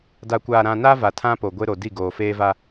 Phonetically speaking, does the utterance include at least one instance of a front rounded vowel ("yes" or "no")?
no